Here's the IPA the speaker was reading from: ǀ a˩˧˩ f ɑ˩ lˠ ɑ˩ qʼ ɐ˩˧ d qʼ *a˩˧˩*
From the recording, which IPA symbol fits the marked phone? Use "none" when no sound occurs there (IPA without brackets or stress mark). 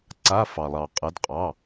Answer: ɑ˩˧˩